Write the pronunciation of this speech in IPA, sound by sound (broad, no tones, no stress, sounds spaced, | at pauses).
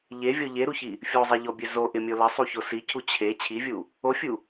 ʎ e vʲ ɔ ʎ e ɾ u ç i | fʲ o zˤ e ʎ ɔ bʲ ø z o ʔ ɪ mʲ o l ə sˤ u ç o s i cʰ u t͡ɕʰ e t͡ɕʰ i vʲ u | o fʲ u